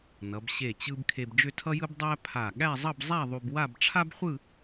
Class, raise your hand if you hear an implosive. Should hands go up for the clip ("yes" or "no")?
yes